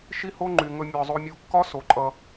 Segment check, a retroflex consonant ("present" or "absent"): absent